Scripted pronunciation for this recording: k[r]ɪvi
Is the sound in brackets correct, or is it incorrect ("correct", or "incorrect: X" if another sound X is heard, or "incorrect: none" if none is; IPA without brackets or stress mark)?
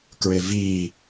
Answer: incorrect: ɹ